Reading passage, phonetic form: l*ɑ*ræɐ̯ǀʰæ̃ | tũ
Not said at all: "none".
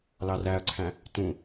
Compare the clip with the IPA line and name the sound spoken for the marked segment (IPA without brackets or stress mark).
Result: ɑ